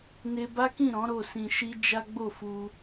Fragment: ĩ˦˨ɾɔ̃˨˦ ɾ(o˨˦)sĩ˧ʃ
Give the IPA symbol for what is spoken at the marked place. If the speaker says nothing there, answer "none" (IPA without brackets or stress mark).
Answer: o˦˨